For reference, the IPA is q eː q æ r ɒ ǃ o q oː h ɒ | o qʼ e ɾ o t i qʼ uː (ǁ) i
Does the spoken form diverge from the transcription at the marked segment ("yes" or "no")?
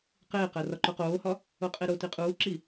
no